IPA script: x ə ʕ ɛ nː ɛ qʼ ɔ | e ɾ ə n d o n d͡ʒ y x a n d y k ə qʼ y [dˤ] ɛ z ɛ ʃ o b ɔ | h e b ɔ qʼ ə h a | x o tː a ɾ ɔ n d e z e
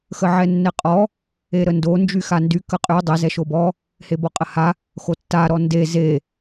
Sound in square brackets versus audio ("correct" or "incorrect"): correct